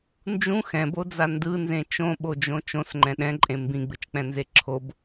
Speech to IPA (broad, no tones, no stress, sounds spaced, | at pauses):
n d͡ʒ ũ x ɛ̃ b o d͡z a n d ɯ n z ẽ t͡ʃ õ ɓ o d͡ʒ õ t͡ʃ õ s ŋ͡ǃ ɛ̃ ɗ ɛ̃ ǃʼ ẽ m b ĩ ɡ͡b ɯ t͡ʃ k͡p ɛ̃ n z e ǁʰ o b